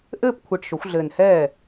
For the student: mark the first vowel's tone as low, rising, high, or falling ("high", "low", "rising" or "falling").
falling